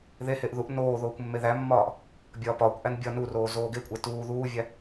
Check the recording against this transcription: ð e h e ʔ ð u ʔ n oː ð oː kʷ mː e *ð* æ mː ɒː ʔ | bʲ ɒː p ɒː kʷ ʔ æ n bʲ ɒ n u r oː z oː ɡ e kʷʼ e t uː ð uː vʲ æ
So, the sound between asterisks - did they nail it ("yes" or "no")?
yes